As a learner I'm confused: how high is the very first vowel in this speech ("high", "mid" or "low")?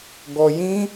mid